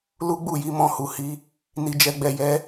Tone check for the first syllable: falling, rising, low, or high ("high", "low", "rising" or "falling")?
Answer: high